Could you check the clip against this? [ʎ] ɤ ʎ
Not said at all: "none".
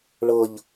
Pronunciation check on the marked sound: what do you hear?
ɭ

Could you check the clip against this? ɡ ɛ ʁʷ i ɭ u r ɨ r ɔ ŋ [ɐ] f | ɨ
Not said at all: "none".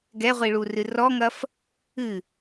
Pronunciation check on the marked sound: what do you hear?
ɐ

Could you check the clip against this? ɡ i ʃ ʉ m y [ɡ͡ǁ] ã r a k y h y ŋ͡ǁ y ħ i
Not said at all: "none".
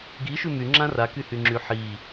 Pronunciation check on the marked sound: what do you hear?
ŋ͡ǁ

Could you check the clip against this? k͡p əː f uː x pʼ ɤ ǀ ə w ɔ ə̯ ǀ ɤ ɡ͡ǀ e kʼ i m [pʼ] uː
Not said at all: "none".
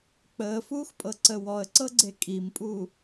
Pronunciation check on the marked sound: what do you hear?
pʼ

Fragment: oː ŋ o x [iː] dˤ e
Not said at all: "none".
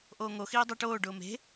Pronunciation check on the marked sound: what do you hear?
iː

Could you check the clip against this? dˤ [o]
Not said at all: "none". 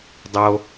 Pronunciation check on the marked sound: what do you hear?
o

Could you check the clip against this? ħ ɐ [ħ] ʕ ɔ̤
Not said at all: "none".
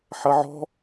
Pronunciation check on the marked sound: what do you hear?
none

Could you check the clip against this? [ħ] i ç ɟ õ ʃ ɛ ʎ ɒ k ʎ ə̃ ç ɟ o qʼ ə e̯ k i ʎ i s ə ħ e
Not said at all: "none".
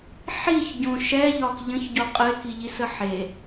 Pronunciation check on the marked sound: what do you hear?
ħ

